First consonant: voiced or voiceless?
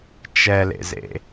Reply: voiceless